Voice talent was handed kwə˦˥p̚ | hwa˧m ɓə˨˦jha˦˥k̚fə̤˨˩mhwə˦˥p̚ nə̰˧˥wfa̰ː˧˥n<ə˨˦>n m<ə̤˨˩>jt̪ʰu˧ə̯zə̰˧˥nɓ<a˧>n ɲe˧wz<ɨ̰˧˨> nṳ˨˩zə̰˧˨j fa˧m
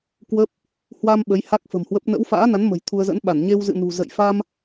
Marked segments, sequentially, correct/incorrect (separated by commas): incorrect, correct, incorrect, correct